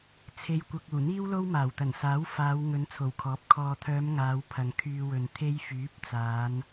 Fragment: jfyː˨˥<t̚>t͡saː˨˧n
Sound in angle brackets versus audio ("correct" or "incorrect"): incorrect